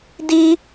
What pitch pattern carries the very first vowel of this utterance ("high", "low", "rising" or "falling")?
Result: high